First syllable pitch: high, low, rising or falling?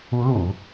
rising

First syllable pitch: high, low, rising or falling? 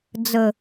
low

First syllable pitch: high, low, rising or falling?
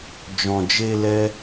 low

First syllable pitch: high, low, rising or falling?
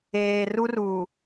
low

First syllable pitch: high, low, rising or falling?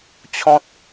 high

